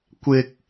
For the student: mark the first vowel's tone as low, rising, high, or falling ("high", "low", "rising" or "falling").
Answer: low